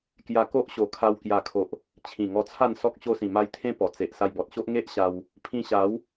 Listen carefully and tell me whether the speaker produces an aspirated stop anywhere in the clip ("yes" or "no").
yes